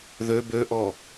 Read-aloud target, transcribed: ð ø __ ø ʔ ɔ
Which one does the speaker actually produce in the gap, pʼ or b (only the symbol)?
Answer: b